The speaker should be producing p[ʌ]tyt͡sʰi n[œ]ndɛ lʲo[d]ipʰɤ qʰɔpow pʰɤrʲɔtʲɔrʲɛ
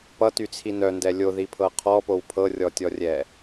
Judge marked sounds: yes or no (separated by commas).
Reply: yes, yes, no